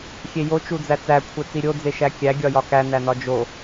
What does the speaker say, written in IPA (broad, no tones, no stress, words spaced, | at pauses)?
xʲejo t͡ʃud͡zæt͡sæ kʷʰet͡siɾʲo d͡zeʃækʲæ ɡʲɒjɒkæ nænɒd͡ʒo